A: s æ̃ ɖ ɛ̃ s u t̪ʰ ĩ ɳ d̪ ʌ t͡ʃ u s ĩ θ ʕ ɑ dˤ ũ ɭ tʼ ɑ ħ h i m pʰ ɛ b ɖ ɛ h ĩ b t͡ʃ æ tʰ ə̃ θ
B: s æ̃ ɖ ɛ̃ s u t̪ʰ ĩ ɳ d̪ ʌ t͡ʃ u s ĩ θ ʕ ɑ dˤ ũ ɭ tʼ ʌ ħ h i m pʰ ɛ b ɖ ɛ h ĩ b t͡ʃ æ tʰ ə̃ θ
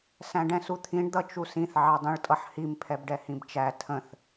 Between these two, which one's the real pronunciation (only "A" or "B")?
B